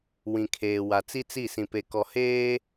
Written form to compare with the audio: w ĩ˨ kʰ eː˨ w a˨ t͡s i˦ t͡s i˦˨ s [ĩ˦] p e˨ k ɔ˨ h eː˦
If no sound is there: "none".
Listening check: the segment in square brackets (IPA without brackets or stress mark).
ĩ˨